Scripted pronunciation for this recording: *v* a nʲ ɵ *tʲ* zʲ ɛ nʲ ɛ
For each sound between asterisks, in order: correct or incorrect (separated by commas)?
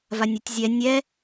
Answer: correct, correct